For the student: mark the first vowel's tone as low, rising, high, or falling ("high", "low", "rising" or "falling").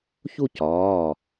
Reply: falling